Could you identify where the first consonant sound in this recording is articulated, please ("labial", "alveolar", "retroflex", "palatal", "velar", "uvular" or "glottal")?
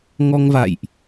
velar